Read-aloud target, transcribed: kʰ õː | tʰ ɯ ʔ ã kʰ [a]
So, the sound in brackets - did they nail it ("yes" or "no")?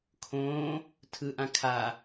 yes